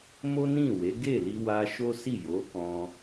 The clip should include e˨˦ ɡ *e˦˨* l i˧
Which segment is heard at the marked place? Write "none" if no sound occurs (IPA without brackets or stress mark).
e˦˨